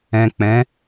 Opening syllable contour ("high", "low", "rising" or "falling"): low